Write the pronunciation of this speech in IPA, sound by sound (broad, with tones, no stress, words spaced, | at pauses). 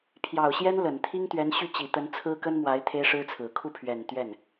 pʰjɑ˨˩ʊ̯ɕjɛ˥n lə˨˩n t̪ʰi˥ŋt̪ɥɛ˧˥nɕy˥˩t͡ɕi˨˩ t̪ə˧˥nt͡sʰɹ̩˥kə˥nmwa˧˥ɪ̯ t̪ʰe˥ɪ̯ʂɻ̩˥t͡sʰɹ̩˨˩ kʰu˥˩pʰɥɛ˨˩n t̪ɥɛ˥˩n